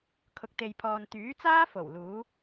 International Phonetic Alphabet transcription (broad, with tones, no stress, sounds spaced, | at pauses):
kʰ ʊ˨ k̚ t̪ e˨ j pʰ ɔː˨ n t̪ yː˨˥ t͡s aː˥ f o˨˩ w l uː˨˥